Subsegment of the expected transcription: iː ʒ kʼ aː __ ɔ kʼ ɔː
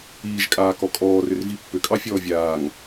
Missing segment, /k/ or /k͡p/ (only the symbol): k